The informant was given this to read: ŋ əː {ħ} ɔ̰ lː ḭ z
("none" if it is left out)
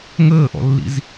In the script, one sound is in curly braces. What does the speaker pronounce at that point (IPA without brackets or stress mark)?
ʔ